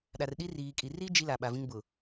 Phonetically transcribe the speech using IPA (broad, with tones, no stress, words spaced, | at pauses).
ɗa˨rɗi˦riː˨kʼi˨ ri˦ d͡ʒi˦la˨ɓa˨vĩ˦ŋ bʊ˨